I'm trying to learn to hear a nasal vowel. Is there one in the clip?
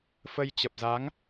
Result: no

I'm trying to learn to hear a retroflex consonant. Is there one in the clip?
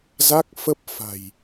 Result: no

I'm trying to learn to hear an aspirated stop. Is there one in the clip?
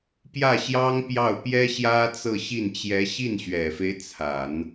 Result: yes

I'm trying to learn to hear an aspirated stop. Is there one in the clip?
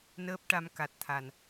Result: yes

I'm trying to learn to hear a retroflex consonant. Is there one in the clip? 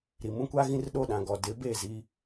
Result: no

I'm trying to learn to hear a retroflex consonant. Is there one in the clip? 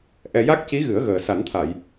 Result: no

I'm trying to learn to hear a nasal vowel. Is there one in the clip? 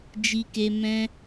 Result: yes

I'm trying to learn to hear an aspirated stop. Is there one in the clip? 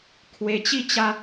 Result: yes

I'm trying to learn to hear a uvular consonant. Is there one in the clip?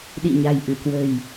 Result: no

